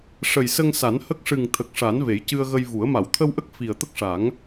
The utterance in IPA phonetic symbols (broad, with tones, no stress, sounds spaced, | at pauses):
ʂ ə˨˩ j s ə˧ ŋ s a˨˩˦ n h ə˦˥ k̚ ʂ ɨ˨˩ ŋ t̪ʰ ə˨˩ k̚ ʂ a˨˩˦ n v e˨˩˦ j c ɨ˧ ə̯ ɣ ə˧ j v u˨˩˦ ə̯ m a˨˩˨ w t̪ʰ ə˧ w ʔ ə˦˥ k̚ f i˨˩ ə̯ t̪ ə˦˥ k̚ ʂ a˨˩˦ ŋ